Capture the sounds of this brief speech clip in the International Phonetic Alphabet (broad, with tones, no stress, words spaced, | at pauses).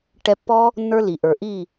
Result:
ʈɛ˧pːɔ˦ | nːə˞˦li˨ ʔə˞˨ ʔi˦˨